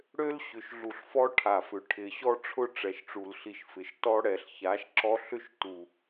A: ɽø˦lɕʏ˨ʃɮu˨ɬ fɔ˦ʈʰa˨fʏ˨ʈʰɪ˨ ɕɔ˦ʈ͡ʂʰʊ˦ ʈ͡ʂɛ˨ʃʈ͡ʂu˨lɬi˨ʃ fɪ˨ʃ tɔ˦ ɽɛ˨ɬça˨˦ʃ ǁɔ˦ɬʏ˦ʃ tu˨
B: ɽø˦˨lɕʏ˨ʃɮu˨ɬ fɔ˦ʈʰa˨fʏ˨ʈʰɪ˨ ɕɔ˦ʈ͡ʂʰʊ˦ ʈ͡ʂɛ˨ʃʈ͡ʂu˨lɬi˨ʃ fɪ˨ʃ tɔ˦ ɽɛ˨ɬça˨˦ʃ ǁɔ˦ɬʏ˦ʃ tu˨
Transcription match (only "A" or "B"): A